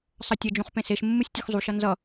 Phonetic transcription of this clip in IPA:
sˤʌtʲʌd͡ʒũχ pẽseʃmːɯsʲ tʲuxzˤuʃʌ nzʌ

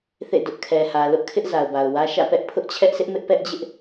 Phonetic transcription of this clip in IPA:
θḛ˦˨dʊ˦ʔkʰɛ˨ hä˨ lʊ˦ʔkʰɪ˦ʔ za˨ʊ̯ba˨ʊ̯wä˦ ʃä̰˦˨pɛ˦ʔ pʰʊ˦ʔt͡ɕʰɛ˦ʔsʰɪ˦ʔmɪ˦ʔ pɛ˦ʔd͡ʑɪ˦ʔ

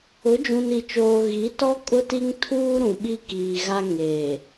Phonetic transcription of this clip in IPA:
ʊ˨˦d͡ʒũ˨ni˨t͡ʃoː˨ ɣi˨˦tɔ˦ kʼʊ˦ti˦ŋtʰuː˦ ɾũ˨ɓi˦kiː˨ɣa˦ ŋeː˨

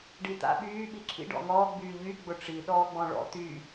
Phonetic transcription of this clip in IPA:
ɖit̪a̰ ɓyː ɓiǁʰḭ ɖɔ̰ŋɔː ɡ͡byːʎy ɡ͡bʊʈ͡ʂi ɗɔːɡ͡bɔ̃ɭɔ̰ t̪y

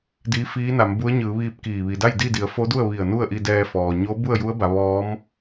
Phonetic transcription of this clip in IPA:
diː˧˥fiː˧˥na˩˧mbu˧˥ə̯ ɲɯː˩˧ʋiː˧p̚ kiː˧˩ ʋi˩da˥˨jdi˥˨di˩˧ə̯ fo˧˥du˥˨ə̯ʋi˧˩ə̯ nu˥˨ə̯ʔi˧dɛː˧fɔː˩ ɲo˧˥ bu˥˨ə̯ju˧˥ə̯ba˩˧ ʋɔː˧˥m

